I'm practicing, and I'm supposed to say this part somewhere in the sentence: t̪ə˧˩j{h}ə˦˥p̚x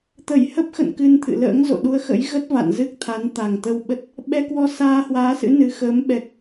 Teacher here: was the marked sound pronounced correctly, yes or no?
yes